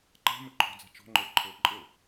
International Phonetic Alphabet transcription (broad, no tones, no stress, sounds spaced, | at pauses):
ǃ a̤ m ɘ ǃʰ ɔ̤ d͡z a̤ t͡ʃ ɔ̤ ŋ͡ǃ ə˞ ǃʰ ɤ ǃʼ ɤ